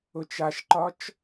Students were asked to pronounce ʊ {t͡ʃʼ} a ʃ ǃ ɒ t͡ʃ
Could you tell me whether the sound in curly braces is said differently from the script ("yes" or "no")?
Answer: yes